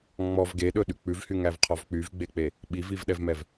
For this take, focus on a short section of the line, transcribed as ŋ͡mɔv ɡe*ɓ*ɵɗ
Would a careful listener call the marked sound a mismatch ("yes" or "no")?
yes